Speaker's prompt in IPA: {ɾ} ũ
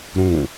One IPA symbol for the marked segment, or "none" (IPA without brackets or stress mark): ɾ